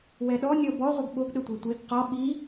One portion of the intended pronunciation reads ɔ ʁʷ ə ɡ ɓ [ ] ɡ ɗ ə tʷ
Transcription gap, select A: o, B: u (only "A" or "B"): A